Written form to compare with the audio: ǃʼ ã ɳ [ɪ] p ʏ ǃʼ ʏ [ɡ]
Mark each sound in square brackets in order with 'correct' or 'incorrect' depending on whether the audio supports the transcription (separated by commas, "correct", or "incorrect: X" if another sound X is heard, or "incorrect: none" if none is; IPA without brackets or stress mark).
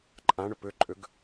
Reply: incorrect: ʏ, correct